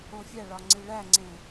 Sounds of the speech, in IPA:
õfʲæɭɒ ŋ͡ǀiɭæŋ͡ǀẽ

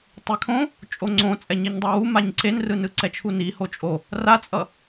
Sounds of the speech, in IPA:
tˤekʰõ | t͡ʃʼoŋ͡ǀõ t͡sʼɛɲeɲdˤawu maɲǀenrɯnɯ ǀɛt͡ʃʰuni hot͡ʃʼo | rat͡sʼʌ

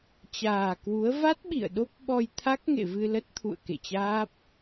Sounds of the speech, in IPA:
t͡ɕaː˨˩kwu˨˦ə̯ va˦˥t̚ɓḭ˧˨ə̯ ɗo˦˥p̚ɓɔ˧jt̪ʰa˦˥k̚ ŋḛ˧˨vɨ˧lə˦˥t̚t̪ʰṵ˧˨ə̯ kḛ˧˨t͡ɕaː˦˥p̚

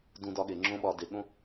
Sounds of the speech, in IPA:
dũ˧dɒ˧ɠe˨ ŋ͡ǁõ˦ɓɒ˧ de˨ɠõ˦

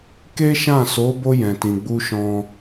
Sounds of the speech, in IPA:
ke˦ʃã˦˨so˨˦ bo˧ jɛ̃˨tĩ˨ɡ͡bu˧ʃɔ̃˧

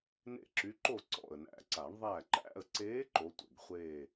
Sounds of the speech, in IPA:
nḛ˥˨ǁy˧˥ǃo˥˨ ǀɔ̰˨˩ə̯næ̰˨˩˦ǀa˨˩˦ɳ ðˤæ˥˨ ǃæ̰˥˨ə̯ǀeː˧˥ ǃo˧˥tʷɛ̰˨˩ɡχʷeː˥˨

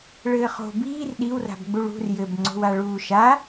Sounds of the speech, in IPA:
ɭɘːχo̤ biːr ɗiwra̤b ɡ͡buɭṳr jɘbŋ͡ǀo̤wa ɭuːʃa

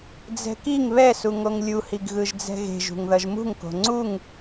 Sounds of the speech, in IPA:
d͡zɛ̤kiŋ βɛsu ŋoŋlʲuhiɡɣɯʒ d͡zɛ̤ɣe̤ʒ ṳŋðʌʒmṳŋko̤ ŋ͡ǀuŋ

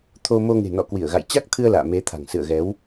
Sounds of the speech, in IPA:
t̪ʰo˧ mo˧ŋe̤˨˩nɔ̰˧˨ kwi˧˩ə̯ɣa̰˧˨j t͡ɕa˦˥k̚t̪ʰɨ˧ə̯ la̰ː˧˨me˨˦t̪ʰa̤˨˩ŋ sɨ̰˧˨ə̯ɣɛ˨˦w

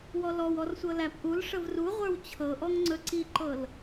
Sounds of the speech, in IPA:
wɔlɔwɔr sʷɤlæpʔulʂəv ruʁʷə˞w t͡ɕʰɤʔɔŋ ŋ͡ǀɵǀiǃɤl

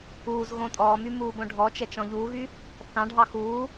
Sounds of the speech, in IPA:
uːz ɣõtʼɔːmy muːbõɖʱɔt͡ʃɛt͡ʃ ɔ̃ʎuːɣy | θɑ̃ɖʱɑ xuː

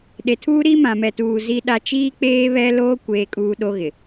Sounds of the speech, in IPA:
ɗe˨tʰuː˦ ɾiː˦mã˨mɛ˨tuː˨ zi˦ɗa˦ t͡ʃiː˦k͡peː˦βɛ˦loː˦ kʷeː˦kʼuː˦ɗo˦ɣɪ˨

